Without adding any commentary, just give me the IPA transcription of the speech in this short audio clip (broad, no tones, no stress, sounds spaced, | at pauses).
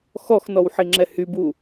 x ɔ x n ɔ w ħ i ŋ͡ǁ ɛ h y b u